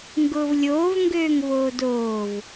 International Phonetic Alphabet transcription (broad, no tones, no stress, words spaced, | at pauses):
ŋɡʊːvlʲoːv ŋɡøːŋvoːdoːv